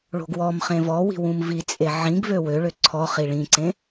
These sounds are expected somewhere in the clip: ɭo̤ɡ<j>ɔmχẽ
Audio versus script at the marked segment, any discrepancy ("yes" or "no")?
yes